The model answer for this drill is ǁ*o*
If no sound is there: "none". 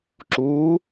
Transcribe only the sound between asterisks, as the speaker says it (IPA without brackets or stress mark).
u